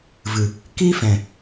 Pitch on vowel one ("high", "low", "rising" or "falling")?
low